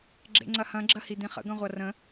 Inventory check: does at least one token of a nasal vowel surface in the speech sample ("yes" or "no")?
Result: yes